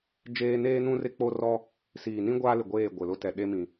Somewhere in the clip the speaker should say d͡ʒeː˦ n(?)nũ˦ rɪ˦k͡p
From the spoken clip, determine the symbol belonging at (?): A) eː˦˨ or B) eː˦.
B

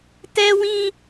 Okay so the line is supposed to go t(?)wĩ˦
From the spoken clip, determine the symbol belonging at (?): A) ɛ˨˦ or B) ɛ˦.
B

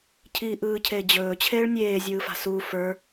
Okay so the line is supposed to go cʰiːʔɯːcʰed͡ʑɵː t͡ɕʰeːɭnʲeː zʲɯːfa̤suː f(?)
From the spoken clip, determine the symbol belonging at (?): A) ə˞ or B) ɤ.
A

